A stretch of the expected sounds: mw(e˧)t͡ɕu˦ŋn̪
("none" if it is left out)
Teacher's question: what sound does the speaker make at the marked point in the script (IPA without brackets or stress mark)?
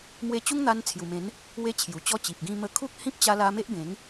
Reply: e˧